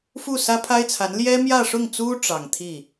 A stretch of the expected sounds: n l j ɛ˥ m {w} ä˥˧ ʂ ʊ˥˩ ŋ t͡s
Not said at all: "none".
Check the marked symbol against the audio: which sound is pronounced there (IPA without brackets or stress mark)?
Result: j